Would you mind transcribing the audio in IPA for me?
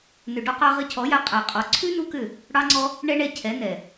n ʏ˨ ɖ ɔ˧ q ɑ˧ ʁ ɘ˧ cʰ ɔ˨˦ j a˧ qʼ a˨ qʼ ɔ˨ ǀʰ ʉ˦ n u˦ k ʏ˦˨ | ɽ ɑ˧ ŋ͡ǀ ɔ˧ | ɳ ɛ˦ ɳ ɛ˧ cʰ ɛ˨˦ n ɛ˨

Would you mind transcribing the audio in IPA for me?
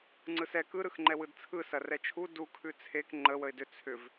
ŋ͡ǀ ɯ s ɛ k ɯ ɾ ɯ x ŋ͡ǃ ɛ w ɯ d t͡sʰ ɯ s ɐ r ɛ t͡ʃʰ u d u kʰ ʉ t͡sʰ e k ŋ͡ǃ ə w ə ɪ̯ d ʏ t͡sʰ ʏ v

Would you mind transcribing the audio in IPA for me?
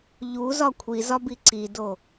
ʎ u z ɒ kʷʰ i z ɒ b i ǀ i d o

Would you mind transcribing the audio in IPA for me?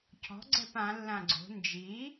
cʰ ɔ̤ ɡ͡ǀ ɛ p ã lː ã ɡ͡ǀ o̤ n d͡ʒ i

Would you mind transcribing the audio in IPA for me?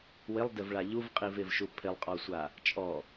w ɪ lˠ d ɪ v ɭ a ʎ u v qʼ i v ɪ v ʃ u pʰ ɪ lˠ qʼ ɔ sʷ a | t͡ʃʼ ɔ

